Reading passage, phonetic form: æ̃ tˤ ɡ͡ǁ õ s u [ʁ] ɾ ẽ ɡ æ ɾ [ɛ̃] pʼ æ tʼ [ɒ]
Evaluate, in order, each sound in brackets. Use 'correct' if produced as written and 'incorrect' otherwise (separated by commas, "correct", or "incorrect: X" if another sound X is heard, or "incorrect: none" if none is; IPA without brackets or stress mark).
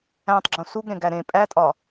incorrect: ɡ, incorrect: ẽ, correct